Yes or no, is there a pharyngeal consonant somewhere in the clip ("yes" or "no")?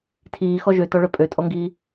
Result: no